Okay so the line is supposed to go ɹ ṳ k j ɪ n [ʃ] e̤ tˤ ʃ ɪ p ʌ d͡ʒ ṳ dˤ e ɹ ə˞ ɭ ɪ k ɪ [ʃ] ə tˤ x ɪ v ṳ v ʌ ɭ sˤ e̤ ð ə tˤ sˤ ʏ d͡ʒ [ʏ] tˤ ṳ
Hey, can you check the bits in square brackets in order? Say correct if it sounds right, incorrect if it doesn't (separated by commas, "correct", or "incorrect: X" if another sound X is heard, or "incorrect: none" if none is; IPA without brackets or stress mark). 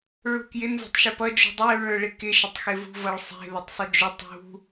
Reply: incorrect: z, correct, correct